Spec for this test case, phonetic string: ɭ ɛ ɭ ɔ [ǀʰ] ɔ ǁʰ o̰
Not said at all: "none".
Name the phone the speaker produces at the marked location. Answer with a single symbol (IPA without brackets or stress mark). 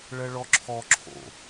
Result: ǁʰ